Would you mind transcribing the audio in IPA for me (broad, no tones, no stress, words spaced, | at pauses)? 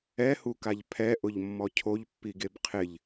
ɛhukaʎ pʰɛʔʊʎmːɔ cʰoʎpːiɡeb qʰɪʎ